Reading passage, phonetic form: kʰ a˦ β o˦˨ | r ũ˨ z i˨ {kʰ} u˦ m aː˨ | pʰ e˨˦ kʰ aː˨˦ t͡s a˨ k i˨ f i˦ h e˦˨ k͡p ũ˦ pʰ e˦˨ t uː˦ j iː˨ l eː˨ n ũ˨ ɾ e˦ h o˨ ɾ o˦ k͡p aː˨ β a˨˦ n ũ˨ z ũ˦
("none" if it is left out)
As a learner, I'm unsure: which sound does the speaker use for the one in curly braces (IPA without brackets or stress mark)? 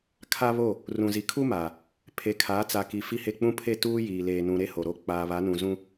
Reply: kʰ